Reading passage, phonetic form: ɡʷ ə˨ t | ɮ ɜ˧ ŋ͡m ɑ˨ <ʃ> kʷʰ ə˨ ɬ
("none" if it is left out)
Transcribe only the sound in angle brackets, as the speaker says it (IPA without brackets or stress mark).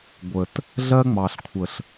ɬ